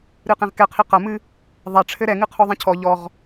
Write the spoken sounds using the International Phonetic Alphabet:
ɾ ɨ q ẽ ʁ k ɛ qʰ i q ɐ m ɨ | ðˤ ɛ ʈ͡ʂʰ ɘ ɾ ɛ ŋ ɨ qʰ o ðˤ ĩ cʰ ɔ ʎ ɔ ʁ

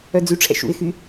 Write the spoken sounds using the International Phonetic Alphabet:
œ d͡z y ʈ͡ʂʰ ɛ̰ ʃ ṵ ɪ̯ x y

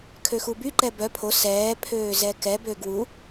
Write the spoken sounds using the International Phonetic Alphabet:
kʰ ø x u b y ǃ ɛ b œ pʰ o s ɛː pʰ øː z ɛ k ɛ b ø ɡ w u

